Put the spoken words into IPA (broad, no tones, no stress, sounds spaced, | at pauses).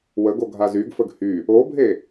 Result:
w ə ɡ o ɡʱ a z y ɡ f ə ɡ h y | o bʱ e